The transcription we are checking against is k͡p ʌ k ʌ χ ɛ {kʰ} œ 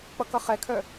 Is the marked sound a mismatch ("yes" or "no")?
no